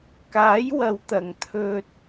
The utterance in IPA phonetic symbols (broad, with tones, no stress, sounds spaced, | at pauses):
k aː˨˥ j w ɐ˨ w t̪ ɐ˨˩ ŋ t̪ʰ ɵ˧ t̚